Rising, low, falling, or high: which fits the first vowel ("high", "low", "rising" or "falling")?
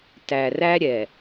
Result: low